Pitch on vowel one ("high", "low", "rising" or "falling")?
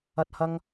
high